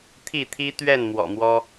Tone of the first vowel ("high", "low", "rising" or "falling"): falling